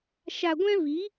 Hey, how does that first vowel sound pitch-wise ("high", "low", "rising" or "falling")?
low